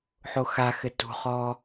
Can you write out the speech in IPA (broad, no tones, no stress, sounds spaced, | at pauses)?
ħ o x a x ɘ t ṳ χ ɔː